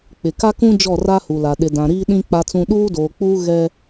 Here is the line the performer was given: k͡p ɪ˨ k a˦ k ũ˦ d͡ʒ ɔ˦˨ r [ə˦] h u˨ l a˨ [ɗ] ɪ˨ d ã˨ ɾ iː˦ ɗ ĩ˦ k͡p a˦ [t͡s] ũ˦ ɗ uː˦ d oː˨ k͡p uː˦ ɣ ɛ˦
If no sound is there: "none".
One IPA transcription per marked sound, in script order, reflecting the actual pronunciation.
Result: a˦, ɗ, t͡s

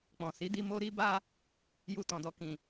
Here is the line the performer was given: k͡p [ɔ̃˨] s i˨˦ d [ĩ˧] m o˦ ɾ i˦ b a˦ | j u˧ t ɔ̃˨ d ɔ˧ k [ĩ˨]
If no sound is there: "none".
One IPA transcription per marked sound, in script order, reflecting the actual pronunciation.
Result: ɔ̃˨, i˧, ĩ˨

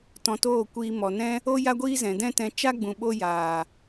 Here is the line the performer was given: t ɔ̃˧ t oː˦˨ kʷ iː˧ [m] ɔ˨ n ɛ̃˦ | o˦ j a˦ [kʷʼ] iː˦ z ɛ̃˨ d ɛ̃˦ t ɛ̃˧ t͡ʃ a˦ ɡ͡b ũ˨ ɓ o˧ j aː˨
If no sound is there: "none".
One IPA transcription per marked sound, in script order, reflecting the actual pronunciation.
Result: m, ɡʷ

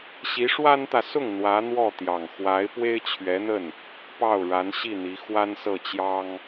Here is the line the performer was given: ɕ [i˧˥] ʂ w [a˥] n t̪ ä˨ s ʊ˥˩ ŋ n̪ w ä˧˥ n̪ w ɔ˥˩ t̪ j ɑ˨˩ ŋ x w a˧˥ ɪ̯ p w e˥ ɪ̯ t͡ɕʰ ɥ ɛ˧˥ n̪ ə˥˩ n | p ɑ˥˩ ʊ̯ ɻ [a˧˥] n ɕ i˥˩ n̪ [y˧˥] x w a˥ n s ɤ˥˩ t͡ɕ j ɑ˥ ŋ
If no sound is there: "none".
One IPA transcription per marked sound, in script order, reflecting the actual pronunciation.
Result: i˧˥, a˥, a˧˥, i˧˥

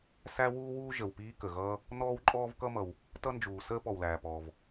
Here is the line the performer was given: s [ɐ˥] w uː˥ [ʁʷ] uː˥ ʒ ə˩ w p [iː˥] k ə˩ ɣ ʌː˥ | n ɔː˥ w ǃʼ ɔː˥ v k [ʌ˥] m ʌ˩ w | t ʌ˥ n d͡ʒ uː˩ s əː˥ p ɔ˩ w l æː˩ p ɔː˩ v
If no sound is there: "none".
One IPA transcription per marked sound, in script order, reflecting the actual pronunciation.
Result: æ˥, w, iː˥, ʌ˥

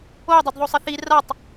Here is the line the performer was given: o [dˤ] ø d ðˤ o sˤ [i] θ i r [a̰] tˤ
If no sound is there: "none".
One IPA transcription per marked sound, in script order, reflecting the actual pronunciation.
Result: dˤ, ɪ, a

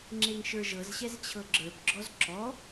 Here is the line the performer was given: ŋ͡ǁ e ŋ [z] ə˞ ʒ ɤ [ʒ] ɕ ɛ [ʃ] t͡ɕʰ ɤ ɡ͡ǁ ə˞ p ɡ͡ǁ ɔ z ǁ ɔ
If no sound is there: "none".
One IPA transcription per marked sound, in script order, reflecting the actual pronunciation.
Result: ʃ, z, z

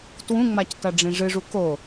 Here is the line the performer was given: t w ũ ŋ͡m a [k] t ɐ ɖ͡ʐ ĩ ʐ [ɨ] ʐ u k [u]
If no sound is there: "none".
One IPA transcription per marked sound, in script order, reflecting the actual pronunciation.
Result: c, ɨ, o

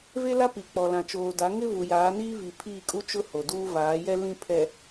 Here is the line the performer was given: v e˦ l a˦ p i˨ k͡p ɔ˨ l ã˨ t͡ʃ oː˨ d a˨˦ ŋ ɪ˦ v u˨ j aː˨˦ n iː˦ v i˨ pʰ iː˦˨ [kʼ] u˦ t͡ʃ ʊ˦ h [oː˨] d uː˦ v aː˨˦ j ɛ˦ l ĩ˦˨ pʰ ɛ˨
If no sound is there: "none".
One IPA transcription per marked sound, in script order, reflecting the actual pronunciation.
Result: kʼ, o˨

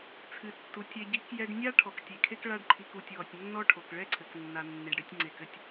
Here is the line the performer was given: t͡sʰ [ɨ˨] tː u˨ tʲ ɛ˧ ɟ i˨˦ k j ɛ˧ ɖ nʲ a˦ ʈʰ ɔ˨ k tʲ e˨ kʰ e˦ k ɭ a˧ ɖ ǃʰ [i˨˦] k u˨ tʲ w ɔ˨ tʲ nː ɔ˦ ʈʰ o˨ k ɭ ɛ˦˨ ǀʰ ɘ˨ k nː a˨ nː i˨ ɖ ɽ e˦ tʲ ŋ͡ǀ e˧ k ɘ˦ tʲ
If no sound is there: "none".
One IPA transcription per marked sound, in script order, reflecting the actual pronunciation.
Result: ɨ˨, i˨

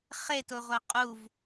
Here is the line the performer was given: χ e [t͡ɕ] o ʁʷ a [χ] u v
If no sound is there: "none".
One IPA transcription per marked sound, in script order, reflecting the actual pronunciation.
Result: t, qʼ

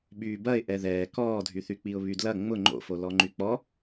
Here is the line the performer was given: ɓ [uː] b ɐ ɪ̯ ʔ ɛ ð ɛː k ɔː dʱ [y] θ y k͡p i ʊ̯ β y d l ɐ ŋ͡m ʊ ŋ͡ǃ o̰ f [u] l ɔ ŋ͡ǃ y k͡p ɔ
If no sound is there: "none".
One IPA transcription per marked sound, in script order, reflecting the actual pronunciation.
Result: yː, y, o

